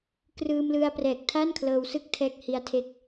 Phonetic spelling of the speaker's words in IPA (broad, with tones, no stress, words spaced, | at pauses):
krɯː˧m lɯ˧a̯ prɛː˨˩k̚tʰa˥˩nkʰlɤː˧w sɯ˥˩k̚tʰɛː˦˥k̚hi˦˥a̯ tʰe˥˩k̚